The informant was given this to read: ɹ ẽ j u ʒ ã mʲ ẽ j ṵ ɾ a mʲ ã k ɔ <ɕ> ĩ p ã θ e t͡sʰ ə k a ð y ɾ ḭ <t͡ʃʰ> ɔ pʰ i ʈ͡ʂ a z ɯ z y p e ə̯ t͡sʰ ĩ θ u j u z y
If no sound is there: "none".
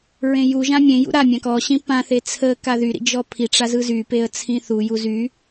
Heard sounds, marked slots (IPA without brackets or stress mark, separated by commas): ɕ, d͡ʒ